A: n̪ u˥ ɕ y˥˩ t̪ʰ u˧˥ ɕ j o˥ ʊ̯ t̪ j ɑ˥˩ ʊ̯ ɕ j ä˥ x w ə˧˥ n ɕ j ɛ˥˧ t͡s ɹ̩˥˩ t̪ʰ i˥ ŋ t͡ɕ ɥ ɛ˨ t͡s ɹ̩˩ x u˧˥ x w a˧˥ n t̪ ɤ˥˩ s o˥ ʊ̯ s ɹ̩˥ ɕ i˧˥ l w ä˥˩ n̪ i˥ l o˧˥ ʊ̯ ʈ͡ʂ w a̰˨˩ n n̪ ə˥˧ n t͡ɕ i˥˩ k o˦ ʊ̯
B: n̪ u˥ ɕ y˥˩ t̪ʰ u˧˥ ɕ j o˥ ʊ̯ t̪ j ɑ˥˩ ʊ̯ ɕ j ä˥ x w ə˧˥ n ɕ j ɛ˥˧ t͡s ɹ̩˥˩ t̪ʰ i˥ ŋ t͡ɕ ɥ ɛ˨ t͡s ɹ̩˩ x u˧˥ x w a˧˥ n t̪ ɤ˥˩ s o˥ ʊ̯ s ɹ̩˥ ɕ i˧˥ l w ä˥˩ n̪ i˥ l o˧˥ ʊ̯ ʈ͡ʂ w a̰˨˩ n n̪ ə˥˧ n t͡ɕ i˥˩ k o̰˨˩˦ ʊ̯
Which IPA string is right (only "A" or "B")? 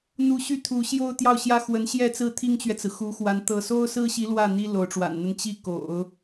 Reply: B